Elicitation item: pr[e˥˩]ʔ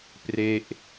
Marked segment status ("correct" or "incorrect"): correct